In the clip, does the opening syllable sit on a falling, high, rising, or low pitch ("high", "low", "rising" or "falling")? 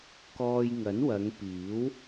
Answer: low